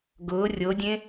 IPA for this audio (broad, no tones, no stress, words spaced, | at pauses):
ɡʊː rʲodʲẽ